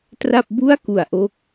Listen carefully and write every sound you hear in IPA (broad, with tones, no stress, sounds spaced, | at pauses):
t r a˥˩ p̚ b u˥˩ a̯ k u˨˩ a̯ ʔ o˦˥ k̚